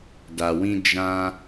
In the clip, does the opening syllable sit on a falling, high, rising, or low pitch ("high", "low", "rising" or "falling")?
low